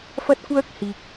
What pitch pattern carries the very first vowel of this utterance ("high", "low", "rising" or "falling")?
high